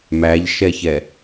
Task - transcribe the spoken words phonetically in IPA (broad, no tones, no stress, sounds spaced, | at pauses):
m æ ʎ ʃ ɛ ç ɛ